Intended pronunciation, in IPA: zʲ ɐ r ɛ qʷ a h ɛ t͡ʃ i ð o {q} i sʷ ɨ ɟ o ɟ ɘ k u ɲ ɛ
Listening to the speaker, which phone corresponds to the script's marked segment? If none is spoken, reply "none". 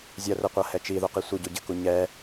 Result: q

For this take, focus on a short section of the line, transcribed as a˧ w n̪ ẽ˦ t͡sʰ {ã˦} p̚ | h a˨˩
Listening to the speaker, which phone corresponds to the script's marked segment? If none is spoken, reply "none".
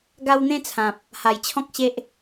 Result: ã˨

